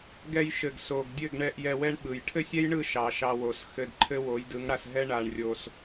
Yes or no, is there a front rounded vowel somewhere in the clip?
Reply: no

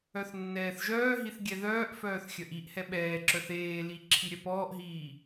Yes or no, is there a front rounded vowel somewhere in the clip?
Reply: yes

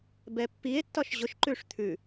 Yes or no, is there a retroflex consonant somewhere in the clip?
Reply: yes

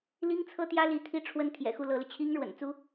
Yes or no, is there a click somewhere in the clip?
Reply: no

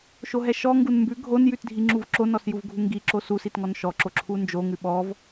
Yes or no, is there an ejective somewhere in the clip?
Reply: no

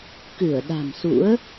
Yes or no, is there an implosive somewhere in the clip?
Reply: yes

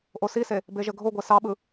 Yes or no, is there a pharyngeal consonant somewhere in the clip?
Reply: no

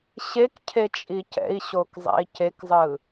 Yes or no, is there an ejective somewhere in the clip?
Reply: yes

